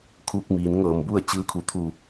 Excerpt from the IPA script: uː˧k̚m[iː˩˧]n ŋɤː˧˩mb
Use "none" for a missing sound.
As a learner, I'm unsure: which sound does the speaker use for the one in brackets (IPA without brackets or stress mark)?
iː˩˧